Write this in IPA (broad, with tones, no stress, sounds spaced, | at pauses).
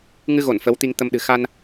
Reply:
ŋ ɨ˧ ɣ o˧˩ n f ə˨˦ w t̪ i˧ ŋ t̪ ə˧ m ɗ ɨ̤˨˩ x a˧ n